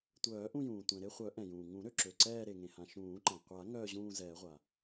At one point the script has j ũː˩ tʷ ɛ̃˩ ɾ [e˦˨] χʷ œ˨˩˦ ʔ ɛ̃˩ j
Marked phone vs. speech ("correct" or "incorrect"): correct